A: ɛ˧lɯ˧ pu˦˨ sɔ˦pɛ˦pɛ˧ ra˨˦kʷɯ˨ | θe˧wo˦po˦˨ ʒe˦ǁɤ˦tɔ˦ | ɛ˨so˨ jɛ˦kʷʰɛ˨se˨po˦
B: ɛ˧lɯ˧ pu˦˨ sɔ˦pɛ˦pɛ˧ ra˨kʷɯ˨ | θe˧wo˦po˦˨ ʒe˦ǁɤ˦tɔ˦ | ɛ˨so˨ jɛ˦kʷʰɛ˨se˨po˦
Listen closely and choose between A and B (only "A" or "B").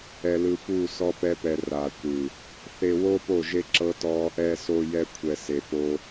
B